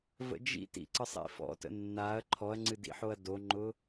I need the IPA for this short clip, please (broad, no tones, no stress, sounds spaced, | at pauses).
v ə̰ d͡ʒ ḭ t ḭ ǀ ə sˤ ḭ f ɔ̰ t ə̰ nː a ɐ̯ ǃʰ ɔ ɐ̯ ŋ͡ǀ ɨ d ḭ ħ o ɐ̯ d o ŋ͡ǃ ʊ